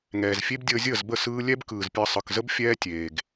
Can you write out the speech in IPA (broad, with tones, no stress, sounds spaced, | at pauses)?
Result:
ŋ ɛː˨ z fʲ e˦ b dʲ əː˧ zʲ əː˦˨ z b ə˦˨ s ɯː˧ lʲ ɛ˦ b k ɯː˨ z pʲ əː˧ sˤ ɯ˨ k z ə˦ b fʲ ɛː˦ tʲ eː˧ ɡ